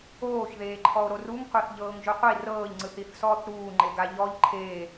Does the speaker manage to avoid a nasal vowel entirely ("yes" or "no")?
yes